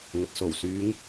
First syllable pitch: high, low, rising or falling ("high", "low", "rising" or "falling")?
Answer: low